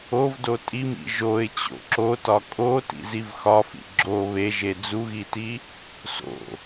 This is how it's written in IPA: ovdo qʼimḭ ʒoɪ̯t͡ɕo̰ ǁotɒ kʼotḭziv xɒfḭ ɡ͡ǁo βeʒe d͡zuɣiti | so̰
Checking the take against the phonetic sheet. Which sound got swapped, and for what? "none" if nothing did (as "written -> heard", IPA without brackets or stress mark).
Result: qʼ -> tʼ